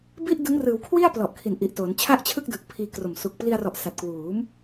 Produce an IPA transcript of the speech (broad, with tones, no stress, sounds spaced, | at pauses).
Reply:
b i˥˩ ʔ d ɯ˦˥ ŋ r ɯː˩˦ w kʰ w i˥˩ a̯ p l ɔ˨˩ ʔ kʰ i˨˩ n ʔ i˨˩ ʔ t oː˩˦ n t͡ɕʰ a˥˩ ʔ t͡ɕʰ ɯ˥˩ k̚ d ɯ˨˩ k̚ pʰ iː˧ k r o˨˩ m s u˨˩ k̚ p l i˧ a̯ r ɔ˨˩ ʔ s a˨˩ t̚ k w uː˩˦ m